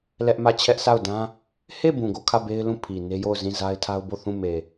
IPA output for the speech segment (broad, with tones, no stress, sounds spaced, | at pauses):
l ɛ˦ ʔ m ä˦˨ t͡ɕʰ ɛ˦ ʔ sʰ a˦˨ ʊ̯ d ã˦ | h e˦˨ b ũ˨ ɡ o˦˨ kʰ ä˦˨ b e˦ ɪ̯ l ũ˦˨ pʰ i˨ n e˦ j o˦˨ ʊ̯ z ĩ˦˨ z a˦ ɪ̯ tʰ a˦ ʊ̯ b o˦˨ θ ũ˦˨ m e˨